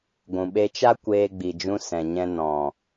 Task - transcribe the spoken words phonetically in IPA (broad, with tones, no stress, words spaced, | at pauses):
ɡʷũ˨ɓe˧t͡ʃa˦ kʷeː˧ɡ͡bi˨d͡ʒũ˧ sɛ̃˨ ɲɛ̃˧ nɔ̃˨